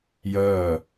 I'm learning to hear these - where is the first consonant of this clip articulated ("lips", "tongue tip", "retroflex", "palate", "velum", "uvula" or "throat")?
palate